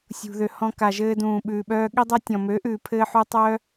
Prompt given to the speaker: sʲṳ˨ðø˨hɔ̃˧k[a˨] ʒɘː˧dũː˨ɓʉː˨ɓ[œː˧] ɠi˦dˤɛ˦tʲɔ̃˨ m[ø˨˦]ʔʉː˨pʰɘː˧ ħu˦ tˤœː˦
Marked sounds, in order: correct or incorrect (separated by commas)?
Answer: correct, correct, correct